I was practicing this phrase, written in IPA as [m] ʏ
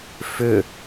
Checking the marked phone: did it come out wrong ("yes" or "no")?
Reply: yes